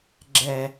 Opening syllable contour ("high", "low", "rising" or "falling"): low